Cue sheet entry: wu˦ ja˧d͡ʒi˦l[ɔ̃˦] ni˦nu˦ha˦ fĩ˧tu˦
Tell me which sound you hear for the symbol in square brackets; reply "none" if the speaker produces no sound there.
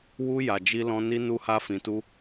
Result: ɔ̃˦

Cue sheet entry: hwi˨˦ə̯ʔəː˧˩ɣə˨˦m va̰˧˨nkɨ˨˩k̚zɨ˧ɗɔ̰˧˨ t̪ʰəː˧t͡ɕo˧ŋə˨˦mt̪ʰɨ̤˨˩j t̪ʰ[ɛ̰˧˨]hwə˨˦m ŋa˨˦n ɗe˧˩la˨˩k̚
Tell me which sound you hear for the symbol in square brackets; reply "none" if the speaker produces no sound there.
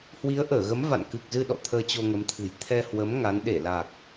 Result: ɛ˧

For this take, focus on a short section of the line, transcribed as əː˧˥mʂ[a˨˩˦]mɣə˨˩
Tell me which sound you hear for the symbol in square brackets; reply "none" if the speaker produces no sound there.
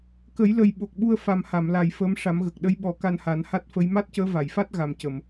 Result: a˨˩˦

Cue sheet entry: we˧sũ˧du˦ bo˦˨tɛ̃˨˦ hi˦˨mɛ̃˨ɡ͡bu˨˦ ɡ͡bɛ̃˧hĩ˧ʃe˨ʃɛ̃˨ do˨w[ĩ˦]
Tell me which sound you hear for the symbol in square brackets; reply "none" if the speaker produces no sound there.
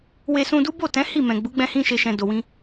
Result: ĩ˧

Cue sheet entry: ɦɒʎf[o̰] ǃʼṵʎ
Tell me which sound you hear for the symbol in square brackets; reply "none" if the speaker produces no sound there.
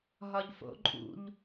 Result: o̰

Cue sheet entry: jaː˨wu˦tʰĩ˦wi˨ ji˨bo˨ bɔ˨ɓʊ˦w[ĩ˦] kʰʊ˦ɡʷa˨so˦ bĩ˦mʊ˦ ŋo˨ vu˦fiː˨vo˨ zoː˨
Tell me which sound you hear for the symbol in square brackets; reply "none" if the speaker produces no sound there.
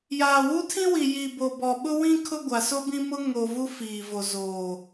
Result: ĩ˦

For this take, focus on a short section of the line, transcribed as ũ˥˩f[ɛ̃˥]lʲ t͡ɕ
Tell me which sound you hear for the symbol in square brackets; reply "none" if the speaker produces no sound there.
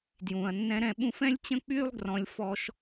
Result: ɛ̃˥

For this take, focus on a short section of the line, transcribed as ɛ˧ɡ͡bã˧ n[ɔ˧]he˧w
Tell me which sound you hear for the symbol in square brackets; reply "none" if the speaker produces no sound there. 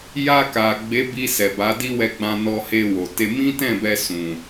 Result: ɔ˧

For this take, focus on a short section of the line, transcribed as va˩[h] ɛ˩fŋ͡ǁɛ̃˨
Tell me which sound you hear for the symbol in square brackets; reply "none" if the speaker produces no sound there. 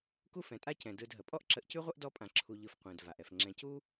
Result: ʔ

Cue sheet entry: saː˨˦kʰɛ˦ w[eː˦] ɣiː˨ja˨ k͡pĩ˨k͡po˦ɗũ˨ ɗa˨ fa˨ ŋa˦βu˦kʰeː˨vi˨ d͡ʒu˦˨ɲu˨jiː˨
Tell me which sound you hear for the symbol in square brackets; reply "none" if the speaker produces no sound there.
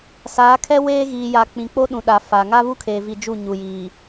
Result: eː˦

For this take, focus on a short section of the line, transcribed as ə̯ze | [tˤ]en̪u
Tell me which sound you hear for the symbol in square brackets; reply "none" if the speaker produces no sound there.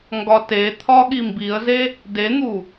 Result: d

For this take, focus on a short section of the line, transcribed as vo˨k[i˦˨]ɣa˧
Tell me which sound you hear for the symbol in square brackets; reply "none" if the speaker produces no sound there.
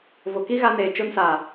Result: i˦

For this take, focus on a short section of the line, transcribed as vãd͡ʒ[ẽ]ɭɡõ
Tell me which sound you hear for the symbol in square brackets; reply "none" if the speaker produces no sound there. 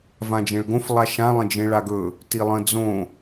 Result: ẽ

